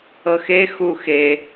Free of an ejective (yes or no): yes